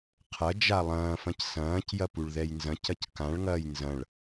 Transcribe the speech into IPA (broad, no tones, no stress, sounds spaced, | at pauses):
qʰ ɐ d͡ʒ a lˠ ɐ̃ː f ɐ̃ c s ɐ̃ː c j ɐ p u ɭ ð ɛ j n z ɐ̃ c ɐ c k ã ɭ ŋ ɐː j n z ɐ̃ ɭ